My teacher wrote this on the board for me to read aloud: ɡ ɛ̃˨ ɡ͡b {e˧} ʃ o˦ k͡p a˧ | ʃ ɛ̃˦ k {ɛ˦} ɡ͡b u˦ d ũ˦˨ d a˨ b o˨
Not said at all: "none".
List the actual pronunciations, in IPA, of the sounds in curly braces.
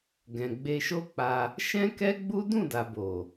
e˧, ɛ˦

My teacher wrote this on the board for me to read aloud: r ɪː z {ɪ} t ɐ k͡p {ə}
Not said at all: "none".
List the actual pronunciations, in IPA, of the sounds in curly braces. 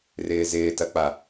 ɪː, a

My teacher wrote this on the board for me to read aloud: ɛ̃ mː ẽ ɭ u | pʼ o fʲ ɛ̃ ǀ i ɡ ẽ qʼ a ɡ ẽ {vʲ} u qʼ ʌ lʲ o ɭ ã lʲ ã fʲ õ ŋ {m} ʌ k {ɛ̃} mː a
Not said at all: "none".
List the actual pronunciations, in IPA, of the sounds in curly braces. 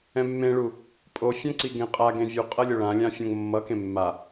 vʲ, mː, ẽ

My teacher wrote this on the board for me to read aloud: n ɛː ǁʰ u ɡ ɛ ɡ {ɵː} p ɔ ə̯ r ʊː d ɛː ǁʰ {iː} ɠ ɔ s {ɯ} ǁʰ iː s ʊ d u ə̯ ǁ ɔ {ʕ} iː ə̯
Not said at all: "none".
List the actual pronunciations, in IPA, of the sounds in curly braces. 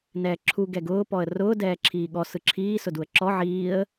ʊː, iː, ɯ, ʕ

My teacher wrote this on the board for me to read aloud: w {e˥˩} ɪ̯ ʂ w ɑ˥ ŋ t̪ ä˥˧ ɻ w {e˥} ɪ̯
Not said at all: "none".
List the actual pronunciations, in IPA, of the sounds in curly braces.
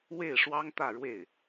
e˥˩, e˥˩

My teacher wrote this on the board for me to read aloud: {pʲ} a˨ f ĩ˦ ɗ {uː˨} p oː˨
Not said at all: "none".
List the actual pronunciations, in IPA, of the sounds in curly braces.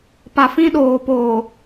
p, oː˨

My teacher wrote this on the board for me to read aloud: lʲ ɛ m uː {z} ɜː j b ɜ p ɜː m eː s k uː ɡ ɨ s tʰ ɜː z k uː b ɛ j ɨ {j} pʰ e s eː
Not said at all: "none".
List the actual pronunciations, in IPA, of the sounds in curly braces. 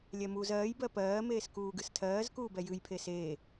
z, j

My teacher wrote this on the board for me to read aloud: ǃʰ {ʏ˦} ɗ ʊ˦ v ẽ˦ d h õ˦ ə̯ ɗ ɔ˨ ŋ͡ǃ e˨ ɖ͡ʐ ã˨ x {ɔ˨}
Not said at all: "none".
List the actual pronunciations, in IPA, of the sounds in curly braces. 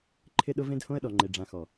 ɪ˦, ɔ˨

